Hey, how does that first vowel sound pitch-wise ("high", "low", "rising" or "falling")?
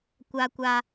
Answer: high